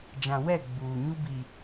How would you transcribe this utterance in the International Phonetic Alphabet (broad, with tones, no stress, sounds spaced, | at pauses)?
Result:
d͡ʒ ã˨ w ɛ˦˨ ɡ͡b uː˨ ɲ u˦ b i˨